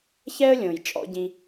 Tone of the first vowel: high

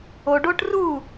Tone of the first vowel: low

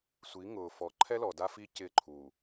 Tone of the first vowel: rising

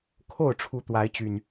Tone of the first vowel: falling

